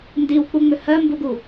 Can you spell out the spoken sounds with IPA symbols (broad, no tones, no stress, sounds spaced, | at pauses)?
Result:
n d i w k͡p u ŋ͡m ʏ h ɜ m b u ɡ u